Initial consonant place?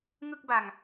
velar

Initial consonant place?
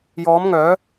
palatal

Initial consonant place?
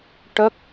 retroflex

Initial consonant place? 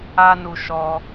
alveolar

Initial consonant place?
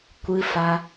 velar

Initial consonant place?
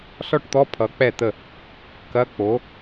alveolar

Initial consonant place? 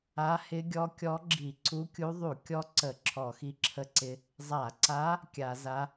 glottal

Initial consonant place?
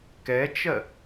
velar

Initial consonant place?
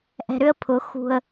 glottal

